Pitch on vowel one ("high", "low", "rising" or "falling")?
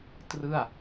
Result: falling